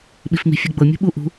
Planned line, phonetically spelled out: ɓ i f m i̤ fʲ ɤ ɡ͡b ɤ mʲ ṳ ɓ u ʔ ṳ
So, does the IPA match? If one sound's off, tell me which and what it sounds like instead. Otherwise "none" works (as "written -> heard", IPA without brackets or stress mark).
none